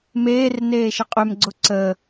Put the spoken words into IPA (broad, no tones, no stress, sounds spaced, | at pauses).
m eː r n eː ʃ ɪ qʼ ø m ɡ͡ǀ ʊ ǀ ə